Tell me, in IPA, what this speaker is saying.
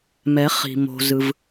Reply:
mɛ˨˦χ i̤˨mo̤˧zɯ˧v

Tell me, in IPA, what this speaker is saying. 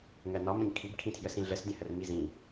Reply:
ŋɜnɒmə̃ɲ kʰibkʰĩtʰjəsĩ ɮəsdʲə̃hər mizĩ

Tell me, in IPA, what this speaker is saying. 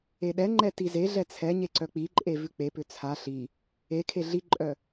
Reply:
eɗɛŋ͡ǃɛ tizeɮɛ t͡sʰɛ ɲeǀœk͡piǃʼe vʉk͡pepʏ t͡sʰa ɬi | ekʰe ɮiǃʼœ

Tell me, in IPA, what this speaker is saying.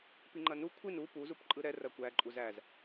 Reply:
piŋ͡ǃɐnu kʷʰin u pu zupǃʼɯɾɛ rɐkʷæ ǃʼuzæz

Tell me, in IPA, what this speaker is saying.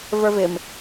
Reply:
və˞vɪm

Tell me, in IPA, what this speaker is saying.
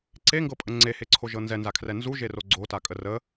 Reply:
ǀeŋɡɤpʼə ŋ͡ǀeheǀʰoʒɤ nzɛnzakʰrɛ nzuʒero ɡ͡ǀotakʼə rə

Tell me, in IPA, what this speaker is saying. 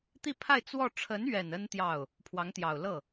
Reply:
t̪i˥˧pʰa˥˧ɪ̯ t͡swɔ˥˩ ʈ͡ʂʰə˧˥nɥɛ˨˩n ə˥n t̪jɑ˥˩ʊ̯ | pʰwɑ˧˥ŋt̪jɑ˨˩ʊ̯lɤ˥˩

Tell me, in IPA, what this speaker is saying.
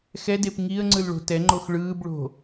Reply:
xɛdep ŋiə̯ŋ͡ǀɯlɭo̤ tɛŋ͡ǃox ɭɯːbɭo̤

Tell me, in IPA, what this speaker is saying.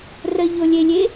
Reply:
rəʎolʲelʲe

